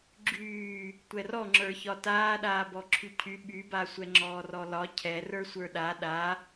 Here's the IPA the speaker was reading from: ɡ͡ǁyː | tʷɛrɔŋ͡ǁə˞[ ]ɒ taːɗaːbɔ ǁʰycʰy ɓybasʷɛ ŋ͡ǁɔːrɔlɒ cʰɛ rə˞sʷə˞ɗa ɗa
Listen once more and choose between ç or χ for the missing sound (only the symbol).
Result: ç